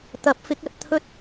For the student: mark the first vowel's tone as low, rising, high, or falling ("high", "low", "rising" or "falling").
rising